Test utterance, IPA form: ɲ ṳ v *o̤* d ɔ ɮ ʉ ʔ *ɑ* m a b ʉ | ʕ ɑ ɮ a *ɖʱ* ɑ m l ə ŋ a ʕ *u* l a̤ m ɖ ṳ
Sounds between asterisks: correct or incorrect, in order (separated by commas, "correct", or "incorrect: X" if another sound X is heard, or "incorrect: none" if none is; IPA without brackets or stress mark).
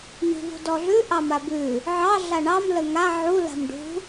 incorrect: ṳ, correct, incorrect: ɳ, correct